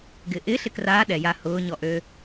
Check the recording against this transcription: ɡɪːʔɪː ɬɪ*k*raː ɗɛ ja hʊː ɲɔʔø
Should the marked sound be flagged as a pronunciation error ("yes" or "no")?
no